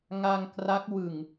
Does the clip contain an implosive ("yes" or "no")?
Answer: no